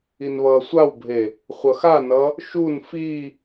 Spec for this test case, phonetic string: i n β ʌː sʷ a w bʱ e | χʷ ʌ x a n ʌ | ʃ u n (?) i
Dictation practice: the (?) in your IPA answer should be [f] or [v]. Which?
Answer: f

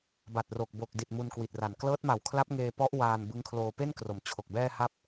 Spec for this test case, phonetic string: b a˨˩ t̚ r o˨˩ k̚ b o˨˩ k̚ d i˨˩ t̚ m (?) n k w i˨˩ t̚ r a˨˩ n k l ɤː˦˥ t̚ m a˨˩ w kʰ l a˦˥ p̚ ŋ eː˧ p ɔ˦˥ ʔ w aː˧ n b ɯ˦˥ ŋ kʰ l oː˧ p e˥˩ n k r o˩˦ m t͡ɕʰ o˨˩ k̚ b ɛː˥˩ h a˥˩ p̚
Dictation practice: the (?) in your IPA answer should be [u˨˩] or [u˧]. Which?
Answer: u˧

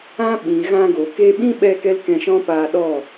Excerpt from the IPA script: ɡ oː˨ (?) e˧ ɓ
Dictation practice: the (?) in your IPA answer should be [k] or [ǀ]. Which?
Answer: k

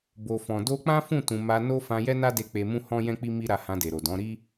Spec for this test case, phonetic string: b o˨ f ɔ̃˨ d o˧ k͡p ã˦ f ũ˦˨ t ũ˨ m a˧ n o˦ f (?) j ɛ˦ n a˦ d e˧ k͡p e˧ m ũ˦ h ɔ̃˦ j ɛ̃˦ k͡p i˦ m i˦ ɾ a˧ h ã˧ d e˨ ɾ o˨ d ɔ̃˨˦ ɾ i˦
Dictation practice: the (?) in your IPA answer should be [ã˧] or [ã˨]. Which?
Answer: ã˧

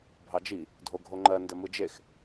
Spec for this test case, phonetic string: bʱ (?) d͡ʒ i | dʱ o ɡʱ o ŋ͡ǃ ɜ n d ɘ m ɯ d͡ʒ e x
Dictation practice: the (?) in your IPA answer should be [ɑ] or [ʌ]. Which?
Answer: ɑ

